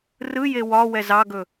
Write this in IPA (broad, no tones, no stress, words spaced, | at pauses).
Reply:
rɯ jewɒwɛ zɑɡɵ